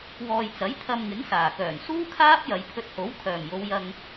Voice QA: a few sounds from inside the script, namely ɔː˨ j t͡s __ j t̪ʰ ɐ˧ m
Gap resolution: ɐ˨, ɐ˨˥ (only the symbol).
ɐ˨˥